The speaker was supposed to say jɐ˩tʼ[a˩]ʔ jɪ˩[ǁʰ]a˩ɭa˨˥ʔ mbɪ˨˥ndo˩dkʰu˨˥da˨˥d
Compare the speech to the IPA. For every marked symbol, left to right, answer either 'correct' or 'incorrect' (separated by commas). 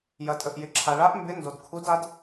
incorrect, correct